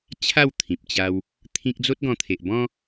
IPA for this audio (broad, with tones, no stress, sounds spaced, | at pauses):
t͡ɕʰ a˥˧ w t̪ʰ ĩ˨ p̚ t͡ɕ a˧ w | t̪ʰ ĩ˦ k̚ d͡z o˦ t̚ ɡ ɔ̃˧ t̪ʰ e˨ ʔ b ɔ̃˦